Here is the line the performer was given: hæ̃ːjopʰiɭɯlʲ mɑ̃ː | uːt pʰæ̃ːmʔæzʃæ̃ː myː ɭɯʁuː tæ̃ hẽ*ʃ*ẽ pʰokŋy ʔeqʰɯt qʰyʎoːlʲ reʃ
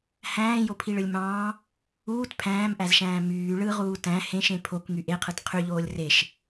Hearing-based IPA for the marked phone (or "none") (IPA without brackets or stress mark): ʃ